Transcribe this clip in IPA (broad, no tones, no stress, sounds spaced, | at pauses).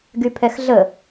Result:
ɡ y pʰ ɛ x ɮ ə